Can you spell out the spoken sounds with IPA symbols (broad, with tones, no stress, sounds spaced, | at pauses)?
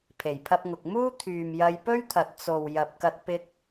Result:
pʰ e˨˩ j pʰ ɐ˧ p̚ ŋ ʊ˨ k̚ m uː˥ t̪ʰ yː˨ m j ɐ˧ j p ɵ˥ ɥ t̪ʰ ɐ˨ t̚ t͡s o˨ w j ɐ˨ p̚ k ɐ˧ t̚ p ɪ˧ k̚